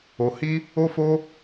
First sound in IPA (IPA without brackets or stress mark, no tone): o